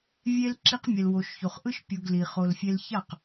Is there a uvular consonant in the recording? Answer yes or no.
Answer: yes